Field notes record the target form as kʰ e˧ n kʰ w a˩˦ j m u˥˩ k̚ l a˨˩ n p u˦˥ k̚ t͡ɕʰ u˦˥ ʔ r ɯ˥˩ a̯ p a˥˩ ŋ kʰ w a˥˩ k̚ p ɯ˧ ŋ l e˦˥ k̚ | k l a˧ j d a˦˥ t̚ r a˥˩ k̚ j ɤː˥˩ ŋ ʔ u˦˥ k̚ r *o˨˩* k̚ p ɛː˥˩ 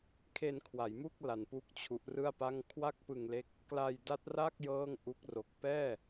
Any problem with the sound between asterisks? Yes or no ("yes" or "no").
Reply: no